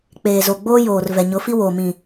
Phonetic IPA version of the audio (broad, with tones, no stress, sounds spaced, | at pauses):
k͡p eː˨ z o˨ ɡ͡b oː˦ j oː˨ r v ɛ˨ ɲ ʊ˨˦ f i˦ w oː˨ m ĩ˨